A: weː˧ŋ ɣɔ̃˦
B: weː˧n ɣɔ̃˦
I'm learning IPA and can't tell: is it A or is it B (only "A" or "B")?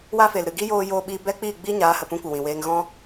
A